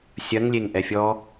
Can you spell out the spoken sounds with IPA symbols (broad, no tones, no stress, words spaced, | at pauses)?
sʲɐŋlʲeŋʔɛ fʲɔ